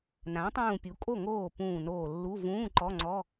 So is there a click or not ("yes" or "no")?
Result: yes